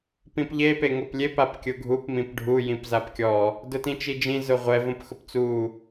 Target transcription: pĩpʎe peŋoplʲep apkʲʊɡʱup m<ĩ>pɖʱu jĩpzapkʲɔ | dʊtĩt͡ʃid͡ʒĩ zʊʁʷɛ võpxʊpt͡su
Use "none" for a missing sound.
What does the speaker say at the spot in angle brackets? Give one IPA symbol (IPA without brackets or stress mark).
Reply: ĩ